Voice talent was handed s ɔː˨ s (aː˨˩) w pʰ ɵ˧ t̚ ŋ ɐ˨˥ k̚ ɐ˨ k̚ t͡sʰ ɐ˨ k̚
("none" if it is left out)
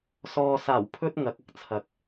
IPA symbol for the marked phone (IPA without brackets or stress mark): aː˨˩